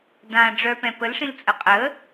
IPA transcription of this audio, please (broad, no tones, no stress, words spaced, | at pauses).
dã ɖ͡ʐœpɛ̃ pəlʂĩlt͡sʼə qʼə